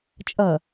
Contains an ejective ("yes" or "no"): yes